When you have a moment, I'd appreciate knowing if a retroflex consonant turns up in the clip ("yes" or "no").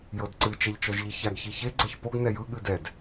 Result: no